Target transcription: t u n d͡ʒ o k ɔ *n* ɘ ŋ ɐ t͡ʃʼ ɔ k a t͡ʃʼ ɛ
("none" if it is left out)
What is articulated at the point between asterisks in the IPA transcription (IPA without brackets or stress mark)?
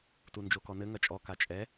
n